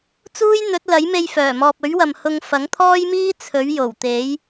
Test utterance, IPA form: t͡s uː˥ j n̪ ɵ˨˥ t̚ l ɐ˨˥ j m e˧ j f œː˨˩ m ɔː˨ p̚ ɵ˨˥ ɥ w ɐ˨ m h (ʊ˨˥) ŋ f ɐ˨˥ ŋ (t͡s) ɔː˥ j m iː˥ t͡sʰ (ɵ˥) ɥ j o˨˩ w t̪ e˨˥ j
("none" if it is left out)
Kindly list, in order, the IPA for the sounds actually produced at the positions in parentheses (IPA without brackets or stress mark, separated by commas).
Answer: ʊ˧, t̪ʰ, ɵ˨˥